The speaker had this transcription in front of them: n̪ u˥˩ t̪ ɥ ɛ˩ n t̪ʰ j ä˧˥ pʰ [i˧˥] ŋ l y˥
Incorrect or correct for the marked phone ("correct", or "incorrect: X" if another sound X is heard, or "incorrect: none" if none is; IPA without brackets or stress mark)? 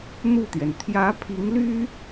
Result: correct